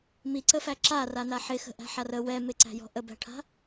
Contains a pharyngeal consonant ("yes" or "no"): yes